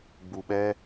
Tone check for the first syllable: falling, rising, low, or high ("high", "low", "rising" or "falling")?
low